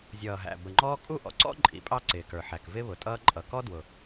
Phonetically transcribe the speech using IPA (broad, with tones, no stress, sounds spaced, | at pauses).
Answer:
zʲ ʌː˩ ɦ æ̰˩ b ə˩ ŋ͡ǃ ɔː˥ kʼ u˥ ʔ ɔ̰˩ ǀ ɔ̰˥ ǃʼ ḭ˩ pʼ ɑ˥ ǀ ɪː˩ k ə˞˩ ħ æ˩ k v ɪ˥ β ʊ˩ tʼ ʌː˥ ǃʼ ʌ˩ k ɔ˥ d w ʊ˩